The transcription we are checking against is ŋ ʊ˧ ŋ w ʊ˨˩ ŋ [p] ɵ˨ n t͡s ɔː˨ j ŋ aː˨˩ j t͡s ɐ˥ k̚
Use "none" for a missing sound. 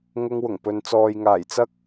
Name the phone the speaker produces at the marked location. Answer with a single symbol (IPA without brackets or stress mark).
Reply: p